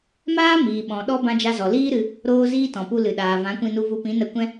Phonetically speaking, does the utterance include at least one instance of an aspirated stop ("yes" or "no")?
no